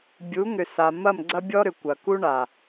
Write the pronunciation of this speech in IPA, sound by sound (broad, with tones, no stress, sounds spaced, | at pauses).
bʲ u˨˦ ŋ ʏ˨ s a˨ m ɐ˦˨ m ɡ͡ǀ ɐ˦ bʲ ɔ˦ ɾ ʏ˨ kʷ ɐ˨ k u˦ ɳ a˨